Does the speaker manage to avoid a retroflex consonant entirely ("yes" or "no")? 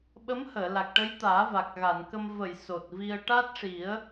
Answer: no